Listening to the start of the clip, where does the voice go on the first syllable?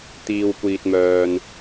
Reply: low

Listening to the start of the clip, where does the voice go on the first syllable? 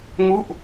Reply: falling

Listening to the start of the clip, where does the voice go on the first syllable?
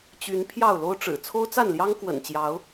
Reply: rising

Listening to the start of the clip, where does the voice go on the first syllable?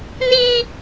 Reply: high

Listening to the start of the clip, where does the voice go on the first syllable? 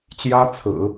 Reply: high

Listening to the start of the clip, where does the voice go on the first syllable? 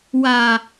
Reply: low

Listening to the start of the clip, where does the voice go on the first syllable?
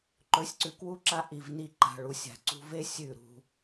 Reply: rising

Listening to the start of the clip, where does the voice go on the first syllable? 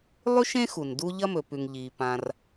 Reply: high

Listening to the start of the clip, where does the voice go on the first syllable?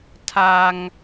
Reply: high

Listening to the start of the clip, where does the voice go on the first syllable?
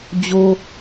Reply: high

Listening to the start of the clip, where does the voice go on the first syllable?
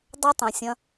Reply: high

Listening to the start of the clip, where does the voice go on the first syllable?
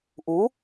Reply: rising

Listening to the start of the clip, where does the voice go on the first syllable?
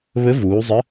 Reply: rising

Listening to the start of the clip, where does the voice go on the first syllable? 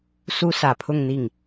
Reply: high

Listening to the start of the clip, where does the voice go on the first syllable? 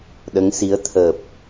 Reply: rising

